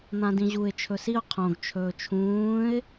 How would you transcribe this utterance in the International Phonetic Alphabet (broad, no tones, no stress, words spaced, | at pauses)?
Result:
n̪ãdĩʑuɪ̯ t͡ʃʰɵsiʊ̯ qʰõɡ t͡ʃʰɵːt͡ʃʰũːɪ̯